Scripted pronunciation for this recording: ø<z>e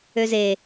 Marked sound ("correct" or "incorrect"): correct